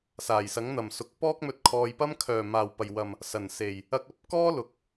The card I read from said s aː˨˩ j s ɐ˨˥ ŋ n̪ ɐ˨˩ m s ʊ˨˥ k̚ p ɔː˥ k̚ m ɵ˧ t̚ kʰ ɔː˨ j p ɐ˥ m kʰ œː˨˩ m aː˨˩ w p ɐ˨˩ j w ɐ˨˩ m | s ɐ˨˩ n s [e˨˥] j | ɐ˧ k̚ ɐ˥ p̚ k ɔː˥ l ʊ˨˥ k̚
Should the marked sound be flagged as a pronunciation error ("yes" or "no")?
yes